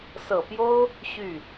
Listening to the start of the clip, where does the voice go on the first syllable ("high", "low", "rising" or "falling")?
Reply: low